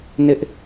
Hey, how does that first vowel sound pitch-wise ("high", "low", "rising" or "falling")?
high